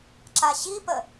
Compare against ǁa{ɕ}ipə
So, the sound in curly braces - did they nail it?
yes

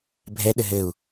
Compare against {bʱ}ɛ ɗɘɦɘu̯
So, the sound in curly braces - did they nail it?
yes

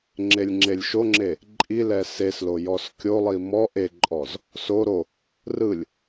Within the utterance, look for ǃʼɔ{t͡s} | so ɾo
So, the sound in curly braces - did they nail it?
no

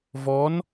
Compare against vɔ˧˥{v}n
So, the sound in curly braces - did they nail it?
no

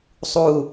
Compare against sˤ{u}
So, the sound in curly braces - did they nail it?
yes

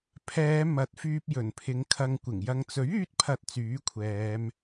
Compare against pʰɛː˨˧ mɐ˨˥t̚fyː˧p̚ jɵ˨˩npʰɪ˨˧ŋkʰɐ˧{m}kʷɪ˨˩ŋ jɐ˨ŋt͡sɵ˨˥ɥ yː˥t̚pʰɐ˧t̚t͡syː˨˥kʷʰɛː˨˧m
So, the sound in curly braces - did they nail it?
no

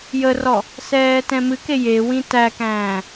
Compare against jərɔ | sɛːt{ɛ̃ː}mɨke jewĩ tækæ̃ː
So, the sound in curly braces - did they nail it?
no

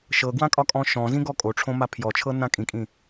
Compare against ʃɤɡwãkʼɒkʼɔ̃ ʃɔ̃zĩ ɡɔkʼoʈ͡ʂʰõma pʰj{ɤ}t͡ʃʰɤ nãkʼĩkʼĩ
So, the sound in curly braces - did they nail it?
no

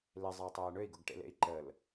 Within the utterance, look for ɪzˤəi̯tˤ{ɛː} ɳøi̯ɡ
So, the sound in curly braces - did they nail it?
yes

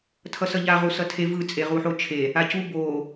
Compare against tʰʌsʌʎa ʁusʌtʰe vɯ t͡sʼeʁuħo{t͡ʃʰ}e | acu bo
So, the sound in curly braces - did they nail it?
yes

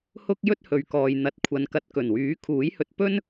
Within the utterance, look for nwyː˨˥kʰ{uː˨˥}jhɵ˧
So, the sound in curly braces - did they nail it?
yes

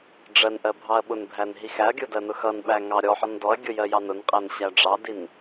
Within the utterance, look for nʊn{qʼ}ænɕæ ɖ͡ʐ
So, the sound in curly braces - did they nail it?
yes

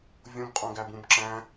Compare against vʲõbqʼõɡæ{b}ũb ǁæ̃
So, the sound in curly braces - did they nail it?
yes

